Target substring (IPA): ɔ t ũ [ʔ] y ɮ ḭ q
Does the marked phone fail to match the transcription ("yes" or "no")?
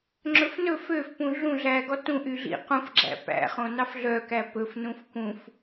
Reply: no